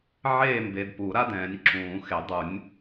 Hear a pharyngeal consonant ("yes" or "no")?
yes